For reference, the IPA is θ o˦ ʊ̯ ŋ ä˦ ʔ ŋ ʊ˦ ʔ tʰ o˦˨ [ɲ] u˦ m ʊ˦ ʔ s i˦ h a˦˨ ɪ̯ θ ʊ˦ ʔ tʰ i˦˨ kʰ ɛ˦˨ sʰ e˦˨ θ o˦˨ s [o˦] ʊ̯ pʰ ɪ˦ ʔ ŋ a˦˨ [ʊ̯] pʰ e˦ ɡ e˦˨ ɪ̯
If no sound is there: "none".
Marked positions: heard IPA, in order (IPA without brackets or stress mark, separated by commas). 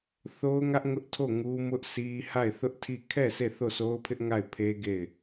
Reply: ŋ, o˦, ɪ̯